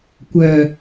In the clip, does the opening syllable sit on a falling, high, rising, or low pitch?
low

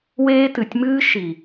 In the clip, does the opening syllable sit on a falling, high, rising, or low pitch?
high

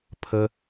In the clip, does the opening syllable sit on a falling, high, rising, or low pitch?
high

